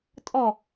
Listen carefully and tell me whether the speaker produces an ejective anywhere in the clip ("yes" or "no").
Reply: yes